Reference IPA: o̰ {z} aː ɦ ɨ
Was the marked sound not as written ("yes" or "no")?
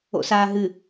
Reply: yes